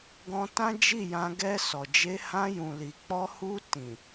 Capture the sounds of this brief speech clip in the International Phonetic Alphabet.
ɡ ɔ̃˧ t ã˦ d͡ʒ i˦˨ j ã˧ ɡ ɛ˧ s ɔ˨ d͡ʒ e˧ h ã˧ j ũ˨ l i˨ k͡p ɔ˧ h u˧ t ĩ˨

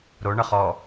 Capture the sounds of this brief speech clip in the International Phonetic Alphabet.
ɾ o ɳ ə χ ɔ

